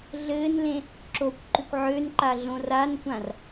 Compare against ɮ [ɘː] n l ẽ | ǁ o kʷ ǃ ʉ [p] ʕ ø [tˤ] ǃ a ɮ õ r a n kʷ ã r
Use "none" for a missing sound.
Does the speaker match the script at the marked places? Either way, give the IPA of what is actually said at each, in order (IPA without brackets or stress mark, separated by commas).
ɘː, kʷ, n